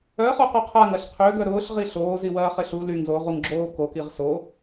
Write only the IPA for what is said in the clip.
œ ə̯ χ o q o qʰ a ŋ ɐ ɬ qʰ ø ɡ œ ɾ ʊː ɬ ʁ i ɬ oː z i w ɐː χ ɪ ɬ u l y ŋ z o ʁ u ŋ ɡ͡ǁ oː k o k i ʁ s o

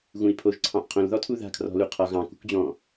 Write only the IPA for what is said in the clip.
ɣ ũ i̯ pʰ o ʒ ǀʰ ɑ̃ ʔ qʰ õ l ð ɔ tʰ u ð a̤ kʰ r ɔ̤ l u qʰ ɒ ɣ ɑ̃ k ṳ k d͡ʑ ɔ̃

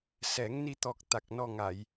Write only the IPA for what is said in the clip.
s ɛ˨˩˦ ŋ n i˧ t̪ ɔ˨˩ k̚ t̪ a˨˩ k̚ n ɔ˧ ŋ a˨˩˨ j

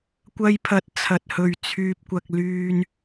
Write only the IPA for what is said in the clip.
kʷ ɐ˧ j pʰ ɐ˨˥ t̚ t͡sʰ ɐ˨ t̚ h ɵ˨ ɥ t͡sʰ yː˧ p̚ kʷ ɐ˧ k̚ l yː˧ n

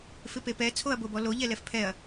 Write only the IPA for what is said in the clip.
f ɪ p e p ɛ t͡sʰ o ɐ̯ b o b ɔ l o ʎ ɛ l ɛ f pʰ ɛ ɐ̯

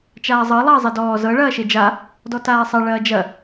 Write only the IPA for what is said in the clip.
t͡ʃ aː zˤ ɤ lˠ ɐː zˤ i d ɔː z ɤ ɭ ɐː ʃ e d͡ʒ a | d ɔ t aː sˤ ɐ ɭ ɐː d͡ʒ ɐ

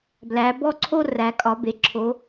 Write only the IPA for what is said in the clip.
b l æ˩˧ b ɔ˦ ǀʰ o˦ r æ˩˧ kʼ ɒ˩˧ b e˩˧ ǁʰ o˩˧

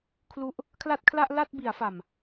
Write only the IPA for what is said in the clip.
kʰ l u˦˥ ʔ | kʰ l a˥˩ t̚ kʰ l a˥˩ ʔ l a˥˩ t̚ b i˩˦ a̯ f a˨˩ m

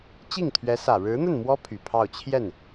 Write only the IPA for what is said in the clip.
t͡ɕ i˥˩ ŋ t̪ʰ ɥ ɛ˧˥ s ä˨˩ ɻ ɻ̩˧˥ n̪ ə˥˩ n m w ɔ˥ pʰ y˨˩ pʰ ɑ˥˧ ʊ̯ t͡ɕʰ j ɛ˥˩ n

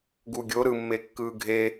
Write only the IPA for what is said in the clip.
ɡ u ɡʲ o ɾ ɯ mː e kː ɯː ɡʱ e

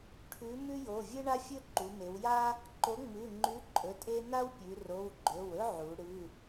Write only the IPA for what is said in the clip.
ʈʰ ʉ˨˥ m ʉ˥ j o˩˧˩ vʲ ɨ˥ ɳ a˥ fʲ ɵ˥ ǃ u˩˧ m e˩˧ w j a˥ | ǃ o˨˥ ŋ͡m ɨ˩˧˩ ŋ͡ǃ ʉ˨˥ ǃʼ ɵ˩˧˩ tʼ e˥ n a˥ w pʲ ʉ˩˧ r o˩˧˩ w ɡ͡ǃ ɵ˩˧˩ w ɵ˥ ʕ u˩˧ ɽ ɨ˩˧˩

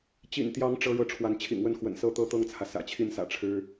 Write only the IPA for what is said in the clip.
t͡ɕ ḭ˨˩ n t̪ j ɑ˧˥ ŋ ʈ͡ʂ ɤ˥ ɻ ɤ˥˩ ʈ͡ʂʰ w a˧˥ n t͡ɕʰ ḭ˨˩ ŋ w ə˥˩ n x w ə̰˨˩ n s ɤ˥ t̪ ɤ˥ t̪ ɤ˥˩ ŋ t͡sʰ ä˩ s ä̰˨˩ t͡ɕʰ i˥˩ n s ä̰˨˩ ʈ͡ʂʰ ɻ̩˥

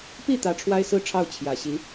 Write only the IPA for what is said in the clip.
p i˥˩ t̪ ä˧˥ ʈ͡ʂʰ w a˥ ɪ̯ s ɹ̩˥ ʈ͡ʂʰ ɑ˥˩ ʊ̯ t͡ɕʰ j ä˨˩ ɕ i˧˥

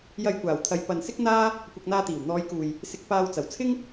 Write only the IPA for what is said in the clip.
j ɐ˧ j kʷ aː˨˩ w t̪ʰ ɐ˨˧ j p ɐ˨ n s ɪ˥ k̚ n̪ aː˥ | kʷ ɐ˧ k̚ n̪ aː˧ t̪ iː˨˩ w n̪ ɔː˨˧ j k uː˨ j | s ɪ˧ k̚ p aː˧ w t͡s ɐ˨˩ w t͡sʰ ɪ˥ ŋ

